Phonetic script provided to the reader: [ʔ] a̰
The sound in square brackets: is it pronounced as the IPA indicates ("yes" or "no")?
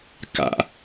no